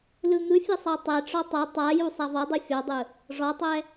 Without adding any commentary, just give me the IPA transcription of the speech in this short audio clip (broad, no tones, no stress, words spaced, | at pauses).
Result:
lɯŋɯfʲɛ sˤatˤɛʈ͡ʂɔ tˤɛ tˤaju sˤavɔdˤɯ fʲɔdˤɯ | ʐɔtˤɛ